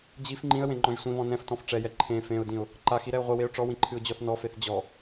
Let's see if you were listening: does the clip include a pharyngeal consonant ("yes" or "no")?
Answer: no